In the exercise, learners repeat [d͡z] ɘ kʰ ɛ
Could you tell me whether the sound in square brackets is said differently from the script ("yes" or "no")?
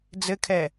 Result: no